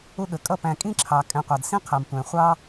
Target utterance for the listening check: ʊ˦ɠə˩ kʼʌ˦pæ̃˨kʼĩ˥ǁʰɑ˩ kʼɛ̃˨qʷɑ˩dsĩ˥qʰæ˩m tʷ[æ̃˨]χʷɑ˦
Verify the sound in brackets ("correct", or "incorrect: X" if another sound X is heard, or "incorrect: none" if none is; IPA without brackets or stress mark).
incorrect: æ̃˩